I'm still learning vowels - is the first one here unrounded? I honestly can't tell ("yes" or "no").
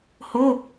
no